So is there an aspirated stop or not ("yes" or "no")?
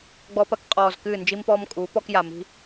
no